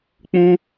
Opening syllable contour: high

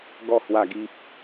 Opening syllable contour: falling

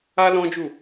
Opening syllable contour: high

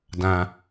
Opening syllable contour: low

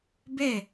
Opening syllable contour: falling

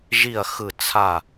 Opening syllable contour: falling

